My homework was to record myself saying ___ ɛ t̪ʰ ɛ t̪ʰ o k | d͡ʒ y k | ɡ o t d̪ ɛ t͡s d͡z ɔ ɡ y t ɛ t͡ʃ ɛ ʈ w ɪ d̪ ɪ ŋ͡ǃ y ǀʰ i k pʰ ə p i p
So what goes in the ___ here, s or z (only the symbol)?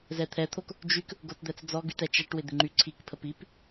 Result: z